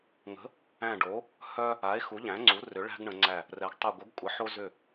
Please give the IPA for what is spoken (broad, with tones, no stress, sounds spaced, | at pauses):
ŋ ə̤˩˥ | æ̃˧˩ ɖ o˩˥ | h œ˦ | a˩˥ e̯ x u˩˥ ʎ æ̃˩˥ ŋ͡ǀ u˩˥ r ʏ˩˥ ɭ æ̤˦ ɡ ɳ ə̃˩˧ ŋ͡ǀ æ˧˩ | r ɛ˩˧ ɡ tˤ u˧˩ ɡʷ ə˩˥ ɡ kʷʼ ə˩˥ ħ o˦ z ʏ˧˩